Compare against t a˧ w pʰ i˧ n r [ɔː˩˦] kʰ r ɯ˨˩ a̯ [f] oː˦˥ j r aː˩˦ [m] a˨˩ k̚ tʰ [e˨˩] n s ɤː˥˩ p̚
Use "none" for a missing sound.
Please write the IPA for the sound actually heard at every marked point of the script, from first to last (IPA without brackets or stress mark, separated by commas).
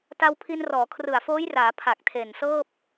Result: ɔː˩˦, f, pʰ, e˨˩